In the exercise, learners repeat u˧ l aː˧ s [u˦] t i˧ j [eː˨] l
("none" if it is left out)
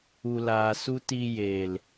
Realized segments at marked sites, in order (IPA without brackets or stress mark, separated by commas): u˦, eː˨